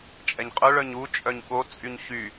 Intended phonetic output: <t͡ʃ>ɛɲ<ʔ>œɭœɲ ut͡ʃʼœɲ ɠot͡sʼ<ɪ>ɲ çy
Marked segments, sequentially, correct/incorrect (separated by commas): incorrect, incorrect, incorrect